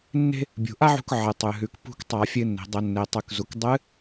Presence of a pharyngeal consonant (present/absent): present